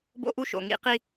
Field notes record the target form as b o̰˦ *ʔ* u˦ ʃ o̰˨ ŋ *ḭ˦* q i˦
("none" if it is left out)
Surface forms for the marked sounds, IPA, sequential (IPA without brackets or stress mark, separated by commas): ʔ, ḭ˦